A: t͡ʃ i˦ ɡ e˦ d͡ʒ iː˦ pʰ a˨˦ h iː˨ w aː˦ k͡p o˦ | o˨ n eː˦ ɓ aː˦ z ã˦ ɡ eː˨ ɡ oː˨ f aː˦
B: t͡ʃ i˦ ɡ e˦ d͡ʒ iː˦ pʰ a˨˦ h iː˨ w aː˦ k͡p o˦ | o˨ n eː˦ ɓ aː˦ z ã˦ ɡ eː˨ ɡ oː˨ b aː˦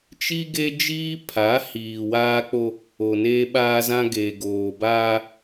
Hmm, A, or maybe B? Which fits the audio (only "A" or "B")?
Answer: B